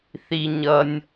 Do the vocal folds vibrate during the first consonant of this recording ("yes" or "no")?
no